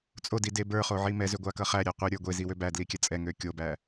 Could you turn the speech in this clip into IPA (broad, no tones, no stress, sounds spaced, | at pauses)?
t͡sʼ o d i d e b ə˞ χ o ʕ i m ɛ z ø ɡʷ a k ʌ χ æ ɾʲ ɛ qʷ i ɾʲ ə˞ ɡʷ e z i w ø b æ d l i kʲ æ t͡sʼ ɛ ŋ ø kʲ o b æ